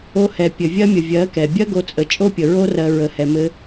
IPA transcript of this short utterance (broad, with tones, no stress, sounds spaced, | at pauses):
o˧ h ɛ˨ pʲ ɘ˨ vʲ ɜ˦ mʲ ə˨ vʲ ɜ˨˦ k ɛ˨ bʲ ɜ˦ ɡ o˧ t͡sʼ ə˨ t͡ʃʼ o˦ pʲ ə˨ ɹ o˦ r ɜ˧ ɹ ə˨ h ɛ˨ m ɘ˧